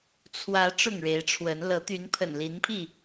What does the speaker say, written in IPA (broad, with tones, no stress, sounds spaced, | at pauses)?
t͡sʰ w ä˨˦ ʈ͡ʂ ʊ˥˨ ŋ ɻ e˨˦ ɪ̯ ʈ͡ʂʰ w ə˨˦ n l ɤ˨˦ t̪ y˨˦ n pʰ ə̰˨˩ n l i˨˦ n pʰ i˥˨